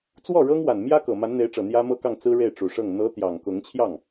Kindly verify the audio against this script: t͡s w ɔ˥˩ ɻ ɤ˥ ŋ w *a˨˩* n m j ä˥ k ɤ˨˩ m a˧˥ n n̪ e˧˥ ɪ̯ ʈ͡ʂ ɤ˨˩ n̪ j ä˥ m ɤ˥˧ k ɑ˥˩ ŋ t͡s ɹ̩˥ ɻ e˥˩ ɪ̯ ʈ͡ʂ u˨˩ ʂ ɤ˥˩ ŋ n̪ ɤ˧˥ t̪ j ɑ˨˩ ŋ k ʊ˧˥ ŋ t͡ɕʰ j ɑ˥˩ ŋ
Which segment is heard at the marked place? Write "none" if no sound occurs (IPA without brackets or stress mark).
a˨˩